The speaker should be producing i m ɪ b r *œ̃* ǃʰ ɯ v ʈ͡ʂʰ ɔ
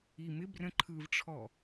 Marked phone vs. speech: incorrect: ə̃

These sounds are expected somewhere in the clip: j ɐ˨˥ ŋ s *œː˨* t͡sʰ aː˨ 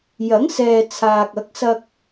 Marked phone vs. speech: incorrect: ɛː˨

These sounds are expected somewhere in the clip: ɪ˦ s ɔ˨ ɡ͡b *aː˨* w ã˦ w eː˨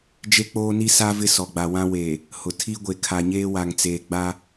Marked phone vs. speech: incorrect: a˨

